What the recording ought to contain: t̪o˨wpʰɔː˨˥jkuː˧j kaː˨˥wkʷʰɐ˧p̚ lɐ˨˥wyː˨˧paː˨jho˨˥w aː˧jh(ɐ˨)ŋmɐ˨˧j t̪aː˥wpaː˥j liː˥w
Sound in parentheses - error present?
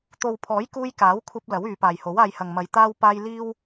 no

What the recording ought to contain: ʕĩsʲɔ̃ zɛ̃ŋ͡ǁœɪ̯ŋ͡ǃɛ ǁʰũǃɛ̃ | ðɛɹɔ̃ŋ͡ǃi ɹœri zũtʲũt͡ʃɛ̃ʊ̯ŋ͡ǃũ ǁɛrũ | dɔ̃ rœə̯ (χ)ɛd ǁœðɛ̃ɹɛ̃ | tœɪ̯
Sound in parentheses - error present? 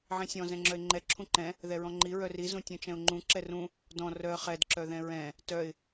no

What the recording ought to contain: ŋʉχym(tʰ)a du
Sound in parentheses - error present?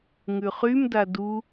yes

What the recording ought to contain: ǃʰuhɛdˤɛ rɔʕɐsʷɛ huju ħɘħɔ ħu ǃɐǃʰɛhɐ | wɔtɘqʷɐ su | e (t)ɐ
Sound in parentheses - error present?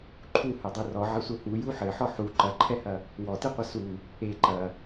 yes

